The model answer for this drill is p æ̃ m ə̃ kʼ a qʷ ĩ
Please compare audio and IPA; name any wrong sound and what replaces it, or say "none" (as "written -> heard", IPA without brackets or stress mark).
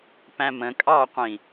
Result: a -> ɑ